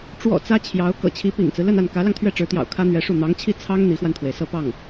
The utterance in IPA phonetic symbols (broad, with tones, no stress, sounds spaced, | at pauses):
ʈ͡ʂ w ɔ̰˨˩ t͡s ä˥ t͡ɕʰ j ɑ˧˥ ʊ̯ k ɤ̰˨˩ t͡ɕʰ i˧˥ p ḭ˨˩ ŋ t͡s ɹ̩˦ l ə˥˧ n a˥˩ n k ä˧˥ l ɑ˧ ŋ t̪ʰ ɥ ɛ˥˩ ʈ͡ʂ ɻ̩˧˥ t̪ j ɑ̰˨˩ ʊ̯ kʰ ä˥ n̪ ɥ ɛ˧˥ ʂ u˥˩ n̪ ɑ˧˥ ŋ t͡ɕʰ i˥˩ t͡sʰ ɑ˥ ŋ n̪ i˧˥ x w a˧ n t̪ʰ w e˩ ɪ̯ s ɤ˥˧ p ɑ˥˩ ŋ